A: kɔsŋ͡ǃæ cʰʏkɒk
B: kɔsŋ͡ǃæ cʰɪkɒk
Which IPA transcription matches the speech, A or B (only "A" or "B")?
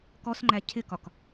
B